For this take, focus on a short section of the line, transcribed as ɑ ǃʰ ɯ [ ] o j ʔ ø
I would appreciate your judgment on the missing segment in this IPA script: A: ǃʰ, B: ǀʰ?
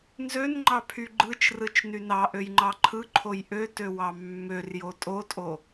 A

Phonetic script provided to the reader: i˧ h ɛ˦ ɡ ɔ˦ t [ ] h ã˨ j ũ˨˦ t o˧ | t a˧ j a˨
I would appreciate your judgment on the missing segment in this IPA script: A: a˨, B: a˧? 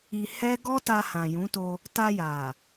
B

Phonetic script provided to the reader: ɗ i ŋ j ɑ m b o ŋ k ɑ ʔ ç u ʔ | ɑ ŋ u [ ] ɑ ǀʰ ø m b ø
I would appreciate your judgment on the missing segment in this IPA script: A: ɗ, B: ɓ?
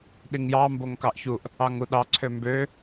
A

